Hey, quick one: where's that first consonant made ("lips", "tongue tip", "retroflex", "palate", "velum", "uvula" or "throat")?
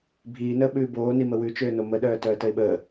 lips